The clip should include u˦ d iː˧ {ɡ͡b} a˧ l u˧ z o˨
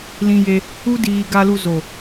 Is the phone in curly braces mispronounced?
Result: yes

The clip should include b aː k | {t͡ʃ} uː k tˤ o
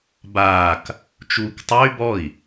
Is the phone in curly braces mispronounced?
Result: no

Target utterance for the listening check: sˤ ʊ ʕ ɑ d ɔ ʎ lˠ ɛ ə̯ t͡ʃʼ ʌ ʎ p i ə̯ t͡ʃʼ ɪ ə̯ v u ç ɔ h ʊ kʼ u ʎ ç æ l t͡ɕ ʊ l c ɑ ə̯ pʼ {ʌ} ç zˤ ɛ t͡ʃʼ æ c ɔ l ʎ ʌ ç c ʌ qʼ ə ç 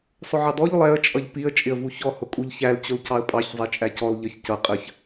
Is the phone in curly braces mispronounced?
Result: yes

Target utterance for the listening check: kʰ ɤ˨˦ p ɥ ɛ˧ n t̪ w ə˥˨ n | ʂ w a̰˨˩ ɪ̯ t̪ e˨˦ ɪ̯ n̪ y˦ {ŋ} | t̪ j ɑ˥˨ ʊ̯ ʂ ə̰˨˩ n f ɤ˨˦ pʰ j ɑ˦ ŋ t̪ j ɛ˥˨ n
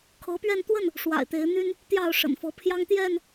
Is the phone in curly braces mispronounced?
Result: yes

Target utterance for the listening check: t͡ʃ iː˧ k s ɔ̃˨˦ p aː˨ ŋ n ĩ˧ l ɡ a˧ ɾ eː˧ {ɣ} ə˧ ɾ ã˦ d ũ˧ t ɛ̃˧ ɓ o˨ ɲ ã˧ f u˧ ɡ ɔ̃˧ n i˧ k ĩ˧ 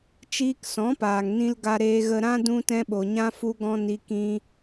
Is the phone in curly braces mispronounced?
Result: no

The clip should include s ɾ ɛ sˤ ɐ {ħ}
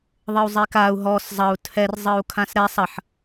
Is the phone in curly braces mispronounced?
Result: no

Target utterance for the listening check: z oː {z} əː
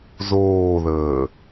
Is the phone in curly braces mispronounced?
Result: yes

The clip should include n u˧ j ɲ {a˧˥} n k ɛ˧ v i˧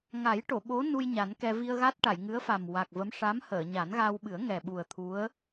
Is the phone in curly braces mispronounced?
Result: yes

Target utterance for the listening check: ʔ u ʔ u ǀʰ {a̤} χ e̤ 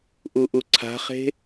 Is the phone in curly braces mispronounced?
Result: no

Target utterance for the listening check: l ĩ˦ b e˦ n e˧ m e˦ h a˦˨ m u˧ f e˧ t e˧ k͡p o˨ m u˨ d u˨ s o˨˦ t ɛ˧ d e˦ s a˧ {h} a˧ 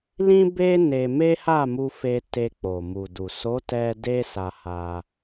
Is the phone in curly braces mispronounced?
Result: no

